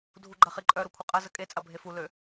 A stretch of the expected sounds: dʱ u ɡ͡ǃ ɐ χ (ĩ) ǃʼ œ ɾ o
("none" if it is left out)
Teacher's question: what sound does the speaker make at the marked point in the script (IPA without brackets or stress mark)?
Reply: i